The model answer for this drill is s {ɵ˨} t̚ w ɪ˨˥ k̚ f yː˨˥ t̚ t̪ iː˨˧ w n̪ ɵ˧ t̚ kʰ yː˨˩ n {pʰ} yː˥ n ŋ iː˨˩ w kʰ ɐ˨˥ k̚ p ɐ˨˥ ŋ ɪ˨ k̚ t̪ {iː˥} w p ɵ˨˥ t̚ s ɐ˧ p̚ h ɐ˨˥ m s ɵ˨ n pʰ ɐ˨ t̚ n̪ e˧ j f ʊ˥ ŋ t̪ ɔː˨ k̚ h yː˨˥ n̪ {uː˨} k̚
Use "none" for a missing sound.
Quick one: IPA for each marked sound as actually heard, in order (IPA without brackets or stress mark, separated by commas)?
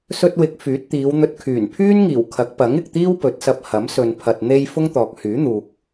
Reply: ɵ˧, pʰ, iː˥, uː˨